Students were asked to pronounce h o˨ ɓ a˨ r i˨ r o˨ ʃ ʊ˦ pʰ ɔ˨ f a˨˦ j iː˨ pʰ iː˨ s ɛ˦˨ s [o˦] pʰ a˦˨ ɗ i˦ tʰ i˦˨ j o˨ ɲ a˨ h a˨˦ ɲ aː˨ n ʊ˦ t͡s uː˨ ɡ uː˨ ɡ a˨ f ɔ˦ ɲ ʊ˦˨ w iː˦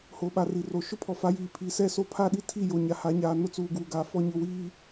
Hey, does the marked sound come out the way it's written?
yes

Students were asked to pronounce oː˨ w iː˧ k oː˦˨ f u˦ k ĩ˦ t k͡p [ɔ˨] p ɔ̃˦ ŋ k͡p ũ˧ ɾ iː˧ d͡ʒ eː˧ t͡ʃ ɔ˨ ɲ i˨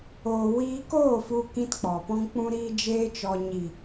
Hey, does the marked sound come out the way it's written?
yes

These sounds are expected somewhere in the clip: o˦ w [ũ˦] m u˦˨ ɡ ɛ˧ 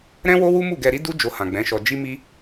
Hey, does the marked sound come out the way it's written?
no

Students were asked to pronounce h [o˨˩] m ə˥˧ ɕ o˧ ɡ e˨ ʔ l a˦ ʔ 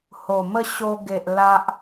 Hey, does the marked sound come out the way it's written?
yes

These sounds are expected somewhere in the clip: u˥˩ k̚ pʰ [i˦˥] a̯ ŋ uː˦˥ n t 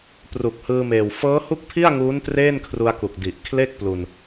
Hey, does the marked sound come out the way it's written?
no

